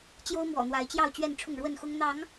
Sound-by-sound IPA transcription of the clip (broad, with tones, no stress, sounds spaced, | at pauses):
t͡ɕ j o˦ ʊ̯ m w ɔ̰˨˩ n̪ w a˨˦ ɪ̯ t͡ɕ j ɑ˥˨ ʊ̯ t͡ɕ ɥ ɛ˥˨ n ʈ͡ʂʰ ʊ˥˨ ŋ ɻ w ə˥˨ n x ʊ˦ ŋ n̪ ɑ˨˦ ŋ